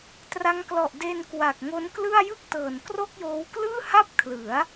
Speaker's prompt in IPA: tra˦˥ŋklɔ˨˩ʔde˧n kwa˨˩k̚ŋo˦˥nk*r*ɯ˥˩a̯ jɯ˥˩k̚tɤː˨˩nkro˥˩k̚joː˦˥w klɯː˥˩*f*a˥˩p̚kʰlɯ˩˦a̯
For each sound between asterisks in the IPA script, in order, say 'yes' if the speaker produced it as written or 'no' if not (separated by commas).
no, no